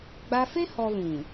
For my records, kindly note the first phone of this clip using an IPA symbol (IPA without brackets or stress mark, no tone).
ɡ͡b